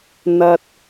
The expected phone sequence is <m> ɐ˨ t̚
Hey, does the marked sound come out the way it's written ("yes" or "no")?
no